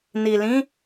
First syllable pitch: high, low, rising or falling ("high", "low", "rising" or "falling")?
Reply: low